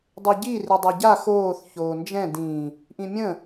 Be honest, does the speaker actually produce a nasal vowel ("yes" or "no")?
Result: yes